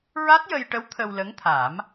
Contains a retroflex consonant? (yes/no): yes